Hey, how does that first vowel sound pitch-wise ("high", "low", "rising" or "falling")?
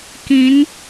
rising